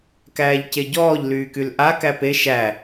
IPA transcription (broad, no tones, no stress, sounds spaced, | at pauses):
k æː ʎ c e ɟ ɔː ʎ l yː k y l ʔ a k æ p e ʃ æ